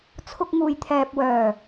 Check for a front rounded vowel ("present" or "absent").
present